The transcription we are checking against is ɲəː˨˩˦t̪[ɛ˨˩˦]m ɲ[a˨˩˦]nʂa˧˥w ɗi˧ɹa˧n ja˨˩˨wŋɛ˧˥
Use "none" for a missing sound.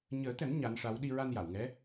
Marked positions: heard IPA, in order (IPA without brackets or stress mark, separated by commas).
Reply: ɛ˨˩˦, a˧˥